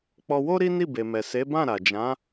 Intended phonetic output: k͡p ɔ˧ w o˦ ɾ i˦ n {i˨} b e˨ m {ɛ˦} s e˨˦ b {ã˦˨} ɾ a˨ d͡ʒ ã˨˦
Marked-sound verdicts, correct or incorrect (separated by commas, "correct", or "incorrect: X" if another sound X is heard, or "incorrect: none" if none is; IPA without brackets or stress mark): incorrect: i˦˨, incorrect: ɛ˨, correct